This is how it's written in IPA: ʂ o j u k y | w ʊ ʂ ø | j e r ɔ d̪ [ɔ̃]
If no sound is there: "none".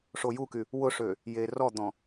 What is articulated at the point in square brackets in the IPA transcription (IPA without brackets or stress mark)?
ɔ̃